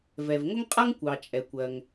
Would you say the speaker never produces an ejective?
no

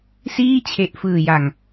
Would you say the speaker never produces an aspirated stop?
no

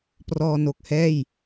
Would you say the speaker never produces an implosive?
yes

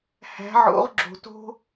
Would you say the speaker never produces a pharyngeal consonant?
no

